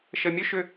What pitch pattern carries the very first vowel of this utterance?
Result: low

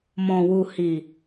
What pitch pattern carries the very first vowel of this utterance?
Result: low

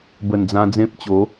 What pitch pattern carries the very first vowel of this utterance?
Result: low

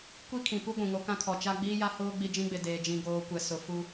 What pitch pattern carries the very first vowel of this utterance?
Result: high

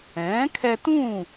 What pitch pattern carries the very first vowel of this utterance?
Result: rising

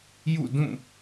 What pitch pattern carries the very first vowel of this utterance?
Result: falling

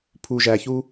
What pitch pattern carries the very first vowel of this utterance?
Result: low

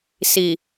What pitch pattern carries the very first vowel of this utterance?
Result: low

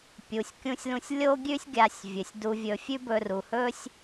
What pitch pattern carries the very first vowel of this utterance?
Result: low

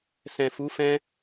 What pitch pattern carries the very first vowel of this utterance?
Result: low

